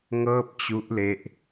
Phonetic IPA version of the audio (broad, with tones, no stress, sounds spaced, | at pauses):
ŋ ɤː˥˩ p̚ t͡ɕ u˦˥ ʔ l e˦˥ ʔ